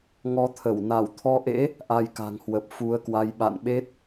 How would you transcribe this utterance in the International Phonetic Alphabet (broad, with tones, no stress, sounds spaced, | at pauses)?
ŋ ɔ˧ t̪ʰ ə˧˩ w n a˧˩ w t̪ʰ ɔ˧ ʔ ḛ˧˥ | ʔ a˧ j k a̤˨˩ ŋ h w ə˨˩ p̚ f u˨˦ ə̯ k w a˧ j ɓ a̰˧˨ n ɓ e˦˥ t̚